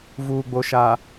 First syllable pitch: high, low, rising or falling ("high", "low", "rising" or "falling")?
low